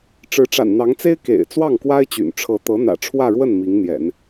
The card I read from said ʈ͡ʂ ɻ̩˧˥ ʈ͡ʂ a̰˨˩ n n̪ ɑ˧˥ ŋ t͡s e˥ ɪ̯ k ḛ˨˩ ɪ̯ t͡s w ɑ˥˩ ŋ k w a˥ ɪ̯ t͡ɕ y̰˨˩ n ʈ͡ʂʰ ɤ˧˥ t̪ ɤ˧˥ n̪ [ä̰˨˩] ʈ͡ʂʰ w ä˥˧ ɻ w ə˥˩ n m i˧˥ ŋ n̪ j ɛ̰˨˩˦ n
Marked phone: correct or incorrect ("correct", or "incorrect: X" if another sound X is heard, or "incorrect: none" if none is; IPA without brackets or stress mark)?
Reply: correct